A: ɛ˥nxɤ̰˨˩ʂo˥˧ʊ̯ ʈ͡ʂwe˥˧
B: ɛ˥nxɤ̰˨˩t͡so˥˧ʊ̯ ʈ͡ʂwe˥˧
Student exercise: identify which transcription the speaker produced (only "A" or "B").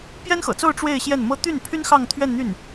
B